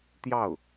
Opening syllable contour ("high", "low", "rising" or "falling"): falling